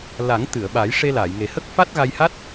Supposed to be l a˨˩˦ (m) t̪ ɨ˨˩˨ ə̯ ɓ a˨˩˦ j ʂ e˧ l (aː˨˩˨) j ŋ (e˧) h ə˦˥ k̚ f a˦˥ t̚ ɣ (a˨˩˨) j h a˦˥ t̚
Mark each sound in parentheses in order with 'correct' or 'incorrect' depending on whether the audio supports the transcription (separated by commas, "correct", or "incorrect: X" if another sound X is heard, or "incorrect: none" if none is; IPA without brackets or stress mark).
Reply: incorrect: ŋ, correct, incorrect: e˨˩, incorrect: a˧